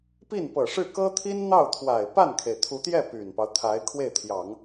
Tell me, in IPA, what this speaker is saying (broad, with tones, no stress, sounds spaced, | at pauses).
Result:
p i˥˩ n p ɤ˨˩ ʂ ɻ̩˥˩ k ɤ˥ t̪ʰ i˥ n n̪ ɑ˥˩ ʊ̯ t̪ʰ w a˨˩ ɪ̯ p a˥˩ n kʰ e˩ ɪ̯ t̪ʰ u˧˥ t̪ j ɛ˥˩ p y˨˩ n p ɑ˦ ʊ̯ t̪ʰ a˧˥ ɪ̯ kʰ w e˥˩ ɪ̯ t̪ʰ j ɑ˨˩˦ ŋ